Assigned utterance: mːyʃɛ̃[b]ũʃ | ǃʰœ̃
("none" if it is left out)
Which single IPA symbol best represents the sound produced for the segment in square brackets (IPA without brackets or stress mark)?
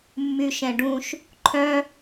ɖ